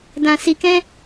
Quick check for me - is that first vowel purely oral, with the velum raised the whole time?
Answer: no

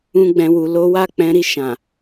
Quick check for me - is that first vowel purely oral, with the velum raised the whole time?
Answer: no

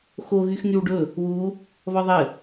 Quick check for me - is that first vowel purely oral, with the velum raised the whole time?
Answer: yes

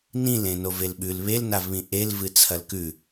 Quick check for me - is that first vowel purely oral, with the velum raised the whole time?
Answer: no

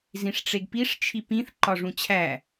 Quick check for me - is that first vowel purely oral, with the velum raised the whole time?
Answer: no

